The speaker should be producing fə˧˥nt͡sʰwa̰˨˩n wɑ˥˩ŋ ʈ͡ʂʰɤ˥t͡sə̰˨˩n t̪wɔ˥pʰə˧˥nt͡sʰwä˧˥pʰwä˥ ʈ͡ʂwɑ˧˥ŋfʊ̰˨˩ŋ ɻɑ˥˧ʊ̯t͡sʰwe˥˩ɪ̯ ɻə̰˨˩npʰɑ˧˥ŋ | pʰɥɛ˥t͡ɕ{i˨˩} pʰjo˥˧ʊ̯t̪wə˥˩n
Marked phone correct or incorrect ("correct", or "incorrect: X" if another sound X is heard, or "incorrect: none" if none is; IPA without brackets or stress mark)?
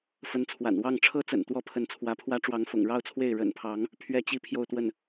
incorrect: i˥˧